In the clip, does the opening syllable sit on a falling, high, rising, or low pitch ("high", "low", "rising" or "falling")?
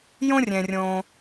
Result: high